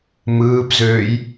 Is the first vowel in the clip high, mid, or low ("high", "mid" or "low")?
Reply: high